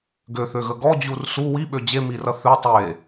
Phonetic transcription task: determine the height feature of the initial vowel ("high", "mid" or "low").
mid